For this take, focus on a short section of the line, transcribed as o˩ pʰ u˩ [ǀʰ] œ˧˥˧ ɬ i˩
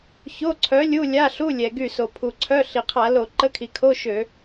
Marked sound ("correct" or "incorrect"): correct